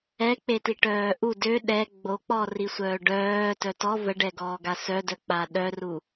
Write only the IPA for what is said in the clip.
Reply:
ɛ k͡p e t i ʈ œː ʔ u d ø ɗ ɛ ɡ͡b o k͡p ɔ r i sʷ œː ɖ œː t œ t ɔ v ə ɖ ɛ ɡ ɔː ɡ a s œ d œ k͡p a ɗ œ r u

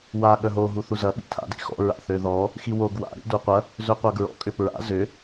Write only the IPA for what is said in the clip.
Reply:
w a ɠ œ ɦ o ɦ u θ u z ɐ ɓ ḭ tʰ a̰ d ḭ x ɔ̰ ɹ a̰ θ ø ð ɔ | x i w o ɡ w a̰ ɾ ḭ d u qʷ ɐ | z ø qʷ a ɡ ɹ ɔ̰ kʼ ʏ p ɹ a̰ z ʏ

